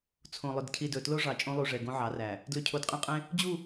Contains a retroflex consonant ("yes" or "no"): yes